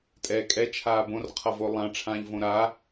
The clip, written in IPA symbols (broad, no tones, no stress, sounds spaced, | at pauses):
tʼ ɛː kʼ ɛ t͡ʃʰ aː b õ r qʰ ʌ v o lˠ ã ʈ͡ʂʰ ãː ʎ v õ ɾ a